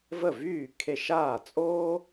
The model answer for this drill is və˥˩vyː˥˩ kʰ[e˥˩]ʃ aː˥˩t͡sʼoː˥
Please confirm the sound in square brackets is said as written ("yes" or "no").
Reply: yes